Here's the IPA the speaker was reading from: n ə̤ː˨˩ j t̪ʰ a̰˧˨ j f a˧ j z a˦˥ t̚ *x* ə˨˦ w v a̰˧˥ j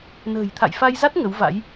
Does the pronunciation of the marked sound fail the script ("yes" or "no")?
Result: yes